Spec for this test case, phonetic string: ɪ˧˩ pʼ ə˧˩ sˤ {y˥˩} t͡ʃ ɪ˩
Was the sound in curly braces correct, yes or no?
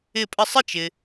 no